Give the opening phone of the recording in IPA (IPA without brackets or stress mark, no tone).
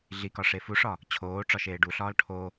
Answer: ɮ